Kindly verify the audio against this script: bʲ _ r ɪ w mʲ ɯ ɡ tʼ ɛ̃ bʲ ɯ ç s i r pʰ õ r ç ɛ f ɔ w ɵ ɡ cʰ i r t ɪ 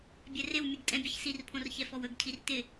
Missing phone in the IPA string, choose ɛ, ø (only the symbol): ɛ